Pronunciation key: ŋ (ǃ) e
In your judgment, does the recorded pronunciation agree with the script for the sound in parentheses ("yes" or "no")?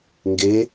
no